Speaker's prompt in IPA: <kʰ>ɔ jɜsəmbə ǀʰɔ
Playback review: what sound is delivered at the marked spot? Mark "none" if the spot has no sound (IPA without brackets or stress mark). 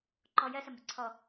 ǃ